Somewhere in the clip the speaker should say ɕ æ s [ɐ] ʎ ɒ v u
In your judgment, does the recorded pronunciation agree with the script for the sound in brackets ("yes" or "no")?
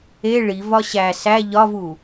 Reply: no